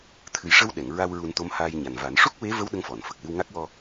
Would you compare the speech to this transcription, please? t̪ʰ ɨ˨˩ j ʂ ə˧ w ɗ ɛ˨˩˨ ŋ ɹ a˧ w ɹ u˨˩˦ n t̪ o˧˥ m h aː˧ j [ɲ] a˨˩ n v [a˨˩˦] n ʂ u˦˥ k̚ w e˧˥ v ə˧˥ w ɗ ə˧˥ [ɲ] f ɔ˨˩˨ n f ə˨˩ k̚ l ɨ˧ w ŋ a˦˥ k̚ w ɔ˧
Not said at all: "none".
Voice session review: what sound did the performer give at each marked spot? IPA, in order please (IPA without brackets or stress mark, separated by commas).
ɲ, a˨˩˦, ŋ